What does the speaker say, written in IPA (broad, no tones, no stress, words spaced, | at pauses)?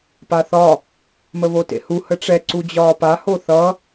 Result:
paθɒ | məβotḛhu həʈ͡ʂɛ ǀud͡ʑɒːpa hoθʌ